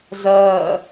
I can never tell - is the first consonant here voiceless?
no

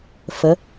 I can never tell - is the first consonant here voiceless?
yes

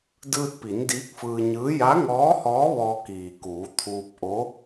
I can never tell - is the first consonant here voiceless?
no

